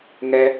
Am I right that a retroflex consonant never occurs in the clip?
yes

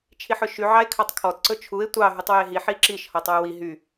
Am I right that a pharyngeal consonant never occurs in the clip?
no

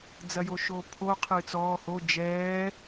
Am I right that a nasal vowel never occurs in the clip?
yes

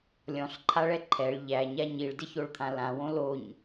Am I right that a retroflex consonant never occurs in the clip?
no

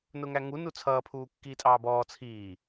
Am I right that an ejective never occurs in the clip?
no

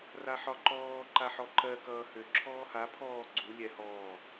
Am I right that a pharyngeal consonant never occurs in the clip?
no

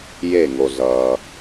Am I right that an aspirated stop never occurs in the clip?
yes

